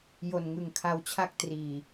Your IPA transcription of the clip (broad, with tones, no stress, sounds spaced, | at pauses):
j o˨˩ n ŋ ɯ˨˩ ŋ kʰ a˧ w t͡ɕʰ a˥˩ k̚ t r iː˨˩